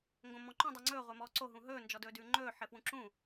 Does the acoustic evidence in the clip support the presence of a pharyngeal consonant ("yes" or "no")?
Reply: yes